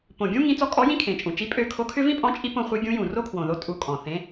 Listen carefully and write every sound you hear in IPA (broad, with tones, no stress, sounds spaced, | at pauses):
p õ˨˩ ɡʲ ũ˥ ŋ ĩ˧˥ t͡s ɔ˧˥ kʼ ɔ˧˥ j ĩ˥ kʰ ẽ˨˩ t͡ʃʼ ũ˨˩ t͡ʃ i˧˥ pʼ ø˧˥ kʰ o˧˥ kʰ ʏ˥ v ĩ˥ pʼ ɔ̃˧˥ t͡ʃʼ i˧˥ p õ˧˥ χʷ i˧˥ ɡʲ ũ˧˥ j ũ˨˩ r o˥ kʰ w õ˨˩ ð o˧˥ tʼ u˧˥ kʼ ɔ̃˨˩ θ ẽ˧˥